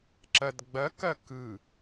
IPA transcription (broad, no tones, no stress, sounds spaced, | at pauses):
ǁ ɐ d ɡ͡b ɐ k ɐ k ɯ